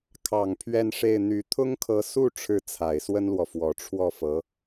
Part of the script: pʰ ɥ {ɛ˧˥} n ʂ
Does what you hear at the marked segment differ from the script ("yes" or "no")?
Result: yes